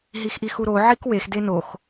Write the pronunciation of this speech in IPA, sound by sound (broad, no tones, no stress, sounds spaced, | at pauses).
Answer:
ɦ i x ʔ i x u ɾ o ʕ i k w e x d e n o x